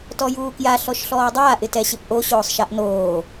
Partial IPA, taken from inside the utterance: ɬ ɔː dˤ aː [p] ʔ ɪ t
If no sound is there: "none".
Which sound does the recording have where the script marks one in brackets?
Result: none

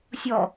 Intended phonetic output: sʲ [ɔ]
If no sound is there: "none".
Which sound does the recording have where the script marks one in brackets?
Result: ɔ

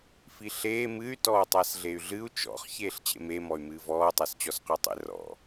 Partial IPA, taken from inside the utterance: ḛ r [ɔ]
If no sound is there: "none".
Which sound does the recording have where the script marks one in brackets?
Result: ɔ̰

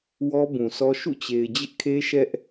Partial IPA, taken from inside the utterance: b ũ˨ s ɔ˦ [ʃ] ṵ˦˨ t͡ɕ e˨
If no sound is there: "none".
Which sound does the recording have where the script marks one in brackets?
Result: ʃ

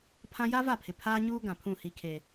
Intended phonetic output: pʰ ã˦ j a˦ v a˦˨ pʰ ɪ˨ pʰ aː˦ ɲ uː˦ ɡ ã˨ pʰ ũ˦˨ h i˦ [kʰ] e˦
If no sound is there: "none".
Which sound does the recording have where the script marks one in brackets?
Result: kʰ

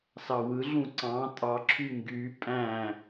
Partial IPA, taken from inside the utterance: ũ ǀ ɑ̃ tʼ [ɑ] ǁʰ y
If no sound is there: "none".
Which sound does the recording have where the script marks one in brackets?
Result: ɑ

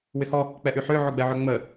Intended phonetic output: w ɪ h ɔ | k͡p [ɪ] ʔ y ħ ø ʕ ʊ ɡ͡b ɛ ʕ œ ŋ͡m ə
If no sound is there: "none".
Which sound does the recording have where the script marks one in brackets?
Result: ɛ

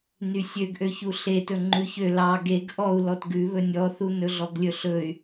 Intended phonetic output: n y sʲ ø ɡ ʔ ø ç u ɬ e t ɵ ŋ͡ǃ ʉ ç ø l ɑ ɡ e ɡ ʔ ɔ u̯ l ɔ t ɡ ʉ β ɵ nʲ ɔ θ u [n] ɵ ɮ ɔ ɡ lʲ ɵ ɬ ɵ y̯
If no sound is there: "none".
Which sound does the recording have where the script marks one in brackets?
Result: n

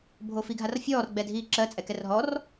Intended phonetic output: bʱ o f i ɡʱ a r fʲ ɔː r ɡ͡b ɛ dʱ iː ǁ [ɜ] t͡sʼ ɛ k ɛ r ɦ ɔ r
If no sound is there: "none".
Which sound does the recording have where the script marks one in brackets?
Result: ɜ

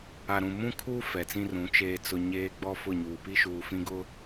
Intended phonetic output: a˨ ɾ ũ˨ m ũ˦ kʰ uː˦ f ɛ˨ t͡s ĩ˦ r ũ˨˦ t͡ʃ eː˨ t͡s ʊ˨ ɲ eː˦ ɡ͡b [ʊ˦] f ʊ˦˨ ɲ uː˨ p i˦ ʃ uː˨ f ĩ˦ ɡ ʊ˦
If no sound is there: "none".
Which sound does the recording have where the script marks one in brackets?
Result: ɔ˦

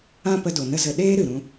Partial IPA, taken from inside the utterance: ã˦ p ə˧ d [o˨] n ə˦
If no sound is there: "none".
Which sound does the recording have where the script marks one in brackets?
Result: o˨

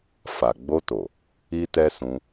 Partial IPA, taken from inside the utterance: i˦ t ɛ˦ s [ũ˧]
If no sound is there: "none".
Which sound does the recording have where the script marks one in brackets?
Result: ũ˧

